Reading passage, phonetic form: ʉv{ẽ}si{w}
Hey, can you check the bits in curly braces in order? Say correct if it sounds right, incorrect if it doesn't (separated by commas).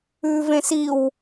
correct, correct